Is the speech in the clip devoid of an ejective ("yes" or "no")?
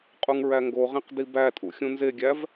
no